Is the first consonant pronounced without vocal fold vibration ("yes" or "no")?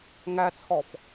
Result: no